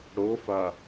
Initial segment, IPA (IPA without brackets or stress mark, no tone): ɽ